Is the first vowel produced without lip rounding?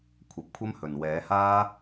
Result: yes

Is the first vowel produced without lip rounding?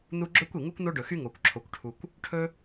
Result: no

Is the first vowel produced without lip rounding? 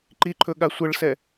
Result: yes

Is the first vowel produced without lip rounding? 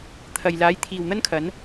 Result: yes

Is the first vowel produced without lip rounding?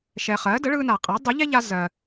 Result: yes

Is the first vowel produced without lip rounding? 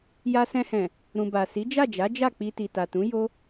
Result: yes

